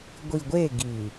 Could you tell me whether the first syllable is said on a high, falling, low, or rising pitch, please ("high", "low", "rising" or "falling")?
low